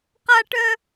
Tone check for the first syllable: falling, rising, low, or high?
high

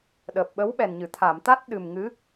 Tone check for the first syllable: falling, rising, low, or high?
low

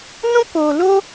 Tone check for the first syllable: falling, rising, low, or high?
high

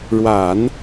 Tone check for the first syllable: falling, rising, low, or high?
low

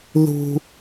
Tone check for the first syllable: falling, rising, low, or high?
high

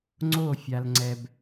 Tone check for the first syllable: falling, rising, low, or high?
falling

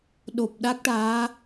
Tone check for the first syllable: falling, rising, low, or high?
low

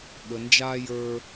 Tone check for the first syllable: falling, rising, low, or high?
low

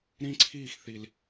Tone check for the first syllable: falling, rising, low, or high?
high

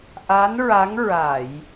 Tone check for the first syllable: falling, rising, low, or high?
rising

